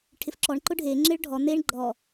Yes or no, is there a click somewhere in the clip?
yes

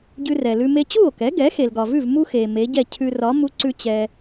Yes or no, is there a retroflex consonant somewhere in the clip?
no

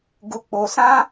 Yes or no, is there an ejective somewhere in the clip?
no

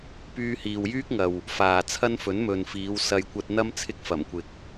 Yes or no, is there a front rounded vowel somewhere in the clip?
yes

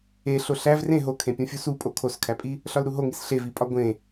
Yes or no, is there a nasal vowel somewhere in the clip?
yes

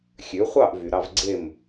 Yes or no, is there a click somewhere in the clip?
yes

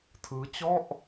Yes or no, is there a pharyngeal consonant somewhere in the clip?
no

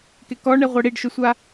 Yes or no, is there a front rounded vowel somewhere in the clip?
no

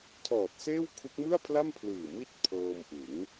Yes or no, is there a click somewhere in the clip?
no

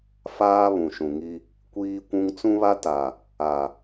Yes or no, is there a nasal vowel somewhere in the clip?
yes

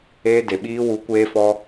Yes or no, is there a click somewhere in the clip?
no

